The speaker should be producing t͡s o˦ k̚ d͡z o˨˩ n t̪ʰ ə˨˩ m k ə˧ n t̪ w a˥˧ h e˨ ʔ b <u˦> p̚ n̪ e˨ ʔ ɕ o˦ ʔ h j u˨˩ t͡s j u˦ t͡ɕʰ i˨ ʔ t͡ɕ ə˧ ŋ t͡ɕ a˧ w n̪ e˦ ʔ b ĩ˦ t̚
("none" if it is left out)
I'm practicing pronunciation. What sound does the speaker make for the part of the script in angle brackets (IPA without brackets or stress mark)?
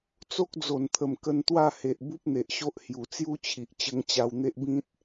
u˦